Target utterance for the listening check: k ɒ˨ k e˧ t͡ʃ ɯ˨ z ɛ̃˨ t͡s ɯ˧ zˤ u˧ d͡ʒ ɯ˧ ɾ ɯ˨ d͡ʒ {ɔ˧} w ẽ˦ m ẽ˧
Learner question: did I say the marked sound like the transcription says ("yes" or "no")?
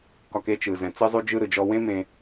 yes